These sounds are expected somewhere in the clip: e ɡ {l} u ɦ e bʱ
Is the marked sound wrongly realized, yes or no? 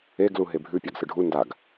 no